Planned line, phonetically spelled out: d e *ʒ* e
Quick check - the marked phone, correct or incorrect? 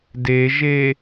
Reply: correct